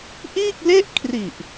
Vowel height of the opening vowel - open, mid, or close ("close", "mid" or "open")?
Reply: close